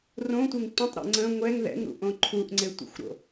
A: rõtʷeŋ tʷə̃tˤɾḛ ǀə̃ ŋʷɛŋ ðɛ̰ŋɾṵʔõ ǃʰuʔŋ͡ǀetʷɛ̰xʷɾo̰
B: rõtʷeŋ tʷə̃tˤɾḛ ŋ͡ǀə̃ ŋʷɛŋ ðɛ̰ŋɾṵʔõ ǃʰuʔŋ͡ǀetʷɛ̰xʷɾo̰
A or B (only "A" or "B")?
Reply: B